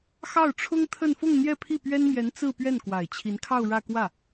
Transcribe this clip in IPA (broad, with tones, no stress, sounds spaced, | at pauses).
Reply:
x ɑ˥˩ ʊ̯ ʈ͡ʂʰ ʊ˥ ŋ t̪ʰ ə˥˧ n f ʊ˥˧ ŋ n̪ j ɛ˥˧ pʰ i˥˩ p ɥ ɛ˥ n m j ɛ˧˥ n t͡s ɹ̩˥˧ p ɥ ɛ˥˩ n k w a˨˩ ɪ̯ t͡ɕʰ i˧˥ n kʰ ɑ˥˧ ʊ̯ ɻ ä˥˧ k w ä˥˩